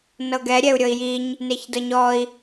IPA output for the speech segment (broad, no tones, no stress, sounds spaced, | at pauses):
n ɤ ɡ ɛ ɾʲ ɛ u̯ ɾʲ ɤ i̯ j i ɲ | n e ç d ɤ ɲ ɔ i̯